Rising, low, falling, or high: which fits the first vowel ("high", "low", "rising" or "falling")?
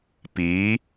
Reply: rising